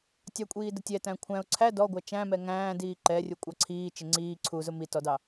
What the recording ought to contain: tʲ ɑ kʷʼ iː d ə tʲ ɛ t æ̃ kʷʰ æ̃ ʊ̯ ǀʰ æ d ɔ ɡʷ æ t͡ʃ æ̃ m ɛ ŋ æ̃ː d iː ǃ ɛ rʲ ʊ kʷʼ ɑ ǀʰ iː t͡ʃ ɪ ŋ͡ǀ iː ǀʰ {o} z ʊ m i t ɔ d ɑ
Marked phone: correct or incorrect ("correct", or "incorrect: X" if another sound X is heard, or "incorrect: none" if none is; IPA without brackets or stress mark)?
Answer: incorrect: u